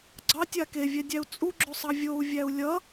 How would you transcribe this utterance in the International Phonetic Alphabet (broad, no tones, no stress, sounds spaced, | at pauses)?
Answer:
ɡ͡ǀ ɑ tʲ a k e vʲ ɛ dʲ æ u̯ t͡sʼ u ɡ͡ǁ o sˤ ɑ vʲ o u̯ vʲ æ u̯ lʲ ʌ